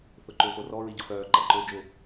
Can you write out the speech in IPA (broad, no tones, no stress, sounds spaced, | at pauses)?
θ ʊ ǃ ʊː x o r ɔ ɹ i ɟ ʊ x œː ǃ ɐ ǃ ʊː d͡ʒ ʊ